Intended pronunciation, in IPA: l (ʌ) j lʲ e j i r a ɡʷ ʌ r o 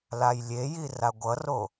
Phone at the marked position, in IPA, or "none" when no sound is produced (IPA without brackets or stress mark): a